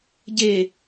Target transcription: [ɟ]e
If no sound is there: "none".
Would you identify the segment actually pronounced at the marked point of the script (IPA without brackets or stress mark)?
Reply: ɟ